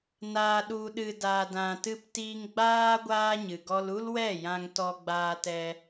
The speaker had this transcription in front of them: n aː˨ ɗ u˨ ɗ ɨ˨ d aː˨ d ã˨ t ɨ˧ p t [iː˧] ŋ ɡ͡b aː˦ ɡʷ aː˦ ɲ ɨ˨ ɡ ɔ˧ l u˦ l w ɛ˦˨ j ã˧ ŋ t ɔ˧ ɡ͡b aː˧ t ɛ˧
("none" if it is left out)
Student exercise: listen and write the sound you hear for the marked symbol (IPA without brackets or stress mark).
iː˧